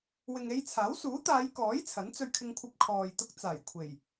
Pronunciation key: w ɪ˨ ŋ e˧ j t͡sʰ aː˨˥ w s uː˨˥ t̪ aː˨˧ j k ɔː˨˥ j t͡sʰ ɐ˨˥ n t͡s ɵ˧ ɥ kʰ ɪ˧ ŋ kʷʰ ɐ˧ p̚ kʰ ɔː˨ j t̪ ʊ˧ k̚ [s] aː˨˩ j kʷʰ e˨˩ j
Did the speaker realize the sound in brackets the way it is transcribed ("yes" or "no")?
no